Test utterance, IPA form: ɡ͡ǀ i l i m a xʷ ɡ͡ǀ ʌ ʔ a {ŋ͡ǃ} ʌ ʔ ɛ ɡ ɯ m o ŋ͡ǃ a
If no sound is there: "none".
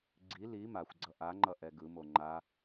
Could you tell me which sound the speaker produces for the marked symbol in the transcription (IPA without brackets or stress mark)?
ŋ͡ǃ